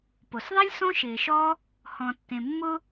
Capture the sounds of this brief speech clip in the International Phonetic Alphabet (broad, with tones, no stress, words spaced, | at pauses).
po˩sðˤe˥lʲ sõ˥ʃɪː˨ʃɔ˥ | hɔ̃˨tːẽ˨mːʊ˦